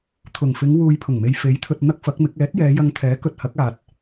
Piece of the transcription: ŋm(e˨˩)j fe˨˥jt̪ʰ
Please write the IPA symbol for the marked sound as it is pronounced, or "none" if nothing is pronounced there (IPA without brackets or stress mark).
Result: e˨